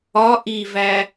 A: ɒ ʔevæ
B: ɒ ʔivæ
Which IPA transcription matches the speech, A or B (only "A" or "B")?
B